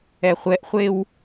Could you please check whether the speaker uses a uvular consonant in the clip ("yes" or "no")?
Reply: yes